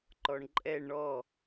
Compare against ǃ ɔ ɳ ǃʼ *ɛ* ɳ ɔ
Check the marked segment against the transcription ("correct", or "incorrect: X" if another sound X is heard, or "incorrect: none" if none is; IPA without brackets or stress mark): correct